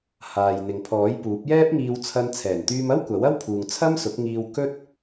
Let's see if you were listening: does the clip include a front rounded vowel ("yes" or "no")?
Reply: yes